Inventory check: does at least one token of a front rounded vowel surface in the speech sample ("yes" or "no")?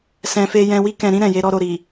no